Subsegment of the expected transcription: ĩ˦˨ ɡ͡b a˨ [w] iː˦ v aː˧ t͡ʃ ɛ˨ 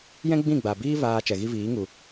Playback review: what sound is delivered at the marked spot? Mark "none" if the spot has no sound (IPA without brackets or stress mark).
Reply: b